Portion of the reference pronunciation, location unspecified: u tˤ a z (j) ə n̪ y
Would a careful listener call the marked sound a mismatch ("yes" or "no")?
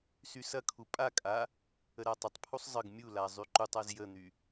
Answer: no